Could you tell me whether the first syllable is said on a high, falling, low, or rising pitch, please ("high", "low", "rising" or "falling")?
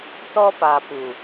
high